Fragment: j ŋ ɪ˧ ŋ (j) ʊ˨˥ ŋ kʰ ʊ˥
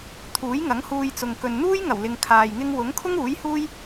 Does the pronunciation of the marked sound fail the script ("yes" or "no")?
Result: yes